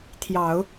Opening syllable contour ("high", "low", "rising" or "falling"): low